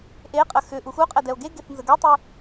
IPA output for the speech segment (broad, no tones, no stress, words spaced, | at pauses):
ʔeqʼə xʏ ʔuxuqʼɛ dɛo̯ɡeɡeθ nzəɡətˤy